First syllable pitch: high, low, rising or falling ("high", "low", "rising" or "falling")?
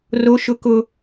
high